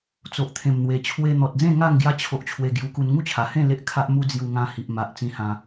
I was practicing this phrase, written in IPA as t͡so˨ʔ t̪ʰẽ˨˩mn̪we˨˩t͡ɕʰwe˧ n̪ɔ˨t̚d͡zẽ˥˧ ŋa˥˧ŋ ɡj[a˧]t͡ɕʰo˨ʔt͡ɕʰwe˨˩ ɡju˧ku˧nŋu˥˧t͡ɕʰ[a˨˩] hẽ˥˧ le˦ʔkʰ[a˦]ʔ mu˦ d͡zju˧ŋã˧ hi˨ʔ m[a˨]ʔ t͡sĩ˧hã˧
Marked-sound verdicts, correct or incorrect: correct, correct, correct, correct

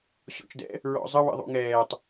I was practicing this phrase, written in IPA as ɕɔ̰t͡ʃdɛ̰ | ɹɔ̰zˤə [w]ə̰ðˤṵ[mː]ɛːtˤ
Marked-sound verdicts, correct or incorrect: correct, incorrect

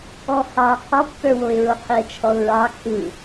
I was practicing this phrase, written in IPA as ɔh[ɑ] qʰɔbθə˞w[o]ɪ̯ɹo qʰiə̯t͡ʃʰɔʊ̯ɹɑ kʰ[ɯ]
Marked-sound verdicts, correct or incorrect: correct, correct, correct

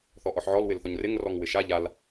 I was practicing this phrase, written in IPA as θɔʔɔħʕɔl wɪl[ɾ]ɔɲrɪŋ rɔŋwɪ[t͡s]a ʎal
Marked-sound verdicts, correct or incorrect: incorrect, incorrect

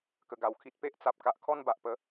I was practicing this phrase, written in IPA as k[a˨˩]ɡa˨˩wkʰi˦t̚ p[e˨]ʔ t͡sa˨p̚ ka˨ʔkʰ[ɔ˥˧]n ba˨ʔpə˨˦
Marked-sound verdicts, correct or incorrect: incorrect, incorrect, correct

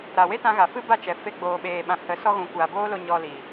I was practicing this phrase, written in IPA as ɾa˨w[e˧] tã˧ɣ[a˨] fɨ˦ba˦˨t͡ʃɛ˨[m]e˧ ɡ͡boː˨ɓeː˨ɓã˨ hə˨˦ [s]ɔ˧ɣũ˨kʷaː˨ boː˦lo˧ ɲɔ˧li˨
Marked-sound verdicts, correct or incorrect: incorrect, correct, incorrect, correct

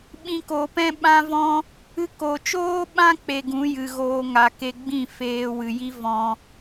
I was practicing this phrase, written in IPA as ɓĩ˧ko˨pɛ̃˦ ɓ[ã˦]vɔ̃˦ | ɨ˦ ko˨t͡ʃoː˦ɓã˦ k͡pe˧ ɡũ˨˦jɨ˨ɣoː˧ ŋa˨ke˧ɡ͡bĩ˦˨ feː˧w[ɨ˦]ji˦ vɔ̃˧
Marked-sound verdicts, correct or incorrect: correct, incorrect

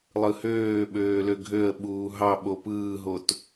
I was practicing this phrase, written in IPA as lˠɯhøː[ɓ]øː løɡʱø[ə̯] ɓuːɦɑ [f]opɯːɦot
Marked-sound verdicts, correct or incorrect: correct, correct, incorrect

